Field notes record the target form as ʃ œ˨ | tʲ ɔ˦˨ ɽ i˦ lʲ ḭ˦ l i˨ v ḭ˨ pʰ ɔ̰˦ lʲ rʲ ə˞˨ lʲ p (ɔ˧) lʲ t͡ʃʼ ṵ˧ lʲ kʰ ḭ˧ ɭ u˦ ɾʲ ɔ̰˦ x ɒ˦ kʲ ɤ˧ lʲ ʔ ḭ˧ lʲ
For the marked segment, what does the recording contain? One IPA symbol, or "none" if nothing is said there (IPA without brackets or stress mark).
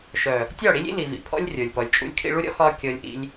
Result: ɔ˨